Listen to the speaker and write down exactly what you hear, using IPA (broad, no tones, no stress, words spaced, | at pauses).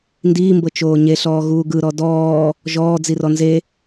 ndiːmbɤ t͡ʃoːɲeɬɔː ɣuːɡɯ ɾɔdɔː | ʒɔː d͡zirɔnze